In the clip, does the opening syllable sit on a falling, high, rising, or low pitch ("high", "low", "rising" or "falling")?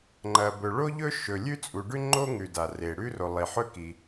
low